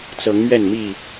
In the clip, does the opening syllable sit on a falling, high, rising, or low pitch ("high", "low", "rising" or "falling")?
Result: rising